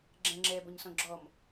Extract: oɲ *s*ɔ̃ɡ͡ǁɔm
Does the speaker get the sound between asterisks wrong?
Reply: no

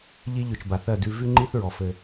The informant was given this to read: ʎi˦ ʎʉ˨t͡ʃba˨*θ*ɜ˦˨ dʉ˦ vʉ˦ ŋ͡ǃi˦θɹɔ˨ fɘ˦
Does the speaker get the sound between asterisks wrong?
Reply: no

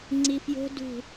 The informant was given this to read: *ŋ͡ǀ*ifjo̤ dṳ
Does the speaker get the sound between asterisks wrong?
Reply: no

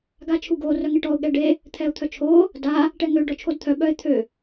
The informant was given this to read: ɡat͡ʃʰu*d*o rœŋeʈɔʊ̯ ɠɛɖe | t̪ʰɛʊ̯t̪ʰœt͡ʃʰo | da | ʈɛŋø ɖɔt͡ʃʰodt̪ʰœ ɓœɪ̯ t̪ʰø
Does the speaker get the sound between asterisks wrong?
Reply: yes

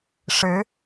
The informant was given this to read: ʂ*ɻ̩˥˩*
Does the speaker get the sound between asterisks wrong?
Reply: yes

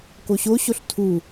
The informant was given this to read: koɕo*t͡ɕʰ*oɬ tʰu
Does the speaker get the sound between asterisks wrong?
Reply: yes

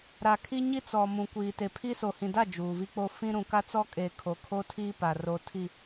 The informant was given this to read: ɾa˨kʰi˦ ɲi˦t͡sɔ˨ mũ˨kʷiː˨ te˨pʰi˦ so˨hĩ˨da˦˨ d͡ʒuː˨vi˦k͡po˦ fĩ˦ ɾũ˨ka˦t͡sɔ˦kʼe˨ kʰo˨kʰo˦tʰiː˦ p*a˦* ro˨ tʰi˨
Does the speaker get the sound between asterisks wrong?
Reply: yes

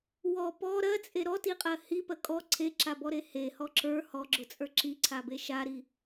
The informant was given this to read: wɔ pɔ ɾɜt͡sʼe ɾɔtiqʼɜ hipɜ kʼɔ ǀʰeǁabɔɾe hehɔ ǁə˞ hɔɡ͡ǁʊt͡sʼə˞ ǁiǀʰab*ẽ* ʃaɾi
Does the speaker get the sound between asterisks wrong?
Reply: yes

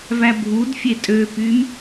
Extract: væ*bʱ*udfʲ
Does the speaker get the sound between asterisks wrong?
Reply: no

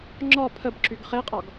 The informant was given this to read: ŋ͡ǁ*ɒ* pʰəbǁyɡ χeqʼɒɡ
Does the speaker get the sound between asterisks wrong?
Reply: no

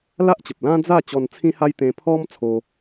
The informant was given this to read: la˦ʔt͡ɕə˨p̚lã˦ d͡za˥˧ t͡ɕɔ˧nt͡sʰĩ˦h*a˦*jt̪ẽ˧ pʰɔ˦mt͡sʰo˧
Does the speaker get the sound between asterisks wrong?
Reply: no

